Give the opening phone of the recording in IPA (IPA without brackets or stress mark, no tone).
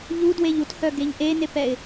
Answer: ʎ